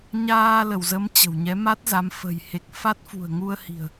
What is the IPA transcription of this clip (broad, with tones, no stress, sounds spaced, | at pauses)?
ɲ aː˧ l ə˧˩ w z ə˨˦ m t͡ɕ ə̤˨˩ w ɲ ɛ˨˦ m a˦˥ t̚ z a˨˦ m f ə̤˨˩ j h e˨˩ k̚ f a˦˥ t̚ f ṳ˨˩ ə̯ ŋ u˧ ə̯ h i̤˨˩ ə̯